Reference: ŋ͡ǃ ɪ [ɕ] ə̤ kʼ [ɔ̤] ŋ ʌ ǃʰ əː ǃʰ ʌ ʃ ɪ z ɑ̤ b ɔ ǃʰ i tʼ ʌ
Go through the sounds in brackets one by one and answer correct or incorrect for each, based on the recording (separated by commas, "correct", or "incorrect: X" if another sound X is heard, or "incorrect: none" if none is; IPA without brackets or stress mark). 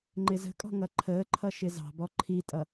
incorrect: z, correct